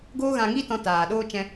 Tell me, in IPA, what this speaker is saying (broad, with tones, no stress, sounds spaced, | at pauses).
ɡ oː˦ ɣ ã˧ ŋ i˦ t ɔ̃˧ t aː˨ ɗ oː˦ t͡ʃ ɛ̃˧